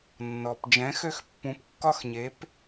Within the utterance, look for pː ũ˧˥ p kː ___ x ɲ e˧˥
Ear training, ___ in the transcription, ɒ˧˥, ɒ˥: ɒ˥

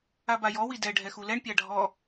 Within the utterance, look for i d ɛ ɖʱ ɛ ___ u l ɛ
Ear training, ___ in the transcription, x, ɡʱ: x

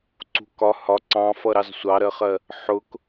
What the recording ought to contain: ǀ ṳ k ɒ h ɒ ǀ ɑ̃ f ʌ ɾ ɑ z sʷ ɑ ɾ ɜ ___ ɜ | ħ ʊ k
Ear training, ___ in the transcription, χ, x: χ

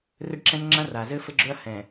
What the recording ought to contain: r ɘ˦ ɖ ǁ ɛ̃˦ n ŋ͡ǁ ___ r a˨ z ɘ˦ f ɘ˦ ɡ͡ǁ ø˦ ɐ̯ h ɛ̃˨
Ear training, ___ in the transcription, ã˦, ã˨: ã˦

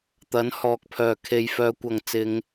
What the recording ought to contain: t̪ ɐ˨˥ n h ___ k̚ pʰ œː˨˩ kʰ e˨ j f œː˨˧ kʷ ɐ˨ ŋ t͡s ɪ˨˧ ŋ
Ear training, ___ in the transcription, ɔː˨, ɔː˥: ɔː˨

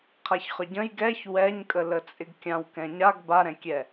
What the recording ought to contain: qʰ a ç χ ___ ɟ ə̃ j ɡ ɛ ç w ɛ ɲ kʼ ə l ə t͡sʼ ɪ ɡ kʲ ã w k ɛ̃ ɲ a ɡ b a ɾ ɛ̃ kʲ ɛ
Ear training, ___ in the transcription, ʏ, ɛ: ʏ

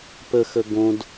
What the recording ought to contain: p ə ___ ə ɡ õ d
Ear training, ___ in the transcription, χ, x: x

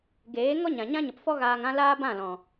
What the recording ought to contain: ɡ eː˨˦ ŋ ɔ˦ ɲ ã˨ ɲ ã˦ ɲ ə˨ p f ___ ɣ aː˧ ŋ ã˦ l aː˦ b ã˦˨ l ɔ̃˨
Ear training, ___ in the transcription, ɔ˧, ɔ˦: ɔ˦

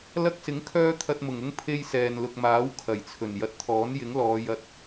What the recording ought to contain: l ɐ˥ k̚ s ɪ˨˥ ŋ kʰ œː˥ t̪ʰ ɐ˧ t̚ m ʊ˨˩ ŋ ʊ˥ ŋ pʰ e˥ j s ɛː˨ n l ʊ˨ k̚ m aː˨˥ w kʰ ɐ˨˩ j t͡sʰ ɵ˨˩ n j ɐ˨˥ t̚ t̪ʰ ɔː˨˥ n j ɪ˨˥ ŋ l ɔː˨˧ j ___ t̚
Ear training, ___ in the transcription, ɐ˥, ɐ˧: ɐ˧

